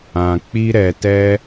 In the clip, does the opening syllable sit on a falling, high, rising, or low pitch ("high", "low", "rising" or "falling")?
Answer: low